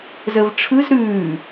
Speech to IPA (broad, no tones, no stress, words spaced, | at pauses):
zəvʈ͡ʂʰɯz ɾʉː